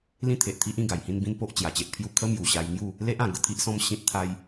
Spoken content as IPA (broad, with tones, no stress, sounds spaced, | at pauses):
l ĩ˦ t̪ʰ e˨ ʔ t̪ʰ i˦ ʔ ĩ˧ ɡ a˨˩ j h ĩ˥˧ n b ĩ˦ n p o˦ ʔ t͡ɕ j a˧ t͡ɕ e˦ ʔ pʰ j u˥˧ kʰ ə˦ m j u˨˩ ɕ a˧ j ŋ j u˥˧ | l e˦ ʔ ã˨˩ ɡ ə˧ t̪ʰ i˦ ʔ s ɔ̃˦ m ɕ ĩ˦ t̚ t̪ʰ a˦ j